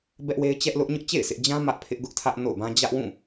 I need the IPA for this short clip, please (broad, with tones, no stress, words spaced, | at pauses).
bɛ˦ʔwe˦ɪ̯ t͡ɕɛ˦ʔlʊ˦ʔ ɲʊ˦ʔt͡ɕḛ˦˨ɪ̯ sʰɪ˦ʔ d͡ʑã˦ mä˦ʔ pʰɪ˦ʔ ɡʊ˦ʔtʰä˦ʔno̰˦˨ʊ̯bã˦ d͡ʑä˦ʔ wũ˦˨